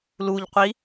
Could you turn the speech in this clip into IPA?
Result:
l u ʎ qʷ i

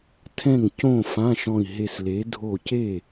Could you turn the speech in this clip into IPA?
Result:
tʰ ɛ̃˥˩ ŋ c õ˥˩ f ã˧˥˧ ʃ ɔ̃˧˩ i̯ ɦ e˧˩ s l e˩˥ dʱ o˧˩ c e˥˩

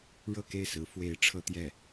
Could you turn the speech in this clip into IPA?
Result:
ɻ ɤ˥˧ k e˥˩ ɪ̯ s ɹ̩˧˥ f w e˧˥ ɪ̯ ʈ͡ʂʰ ɤ˥ t̪ j ɛ˥˩

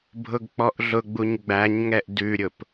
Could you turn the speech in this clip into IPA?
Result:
bʱ ʊ ɡ k͡p ɔ ʔ ɮ ʊ ɡ͡b u ɲ ɡ͡b æ ɲ ŋ ɛ ʔ d ʉ ɾʲ ʊ p

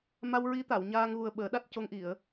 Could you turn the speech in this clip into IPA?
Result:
m a˧ w ɹ i˧˥ t̪ a˨˩˨ w ɲ aː˧ ŋ ɣ u˨˩ ə̯ ɓ əː˨˩˦ ɗ a˦˥ t̚ c o˧ ŋ ʔ i˨˩˨ ə̯

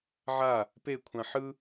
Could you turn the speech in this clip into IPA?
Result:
ʕ a | p e kʷʰ ã ħ ɯ

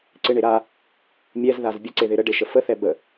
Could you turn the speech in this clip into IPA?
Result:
ǀ ɪ ɳ e ɾ a | mʲ ɛ z ð a z bʲ ə ǀ e ð ɪ ɾ ə ɖ e ʃ ə f ə θ ɛ b ə

